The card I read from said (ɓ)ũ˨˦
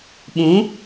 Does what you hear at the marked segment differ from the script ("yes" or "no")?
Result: no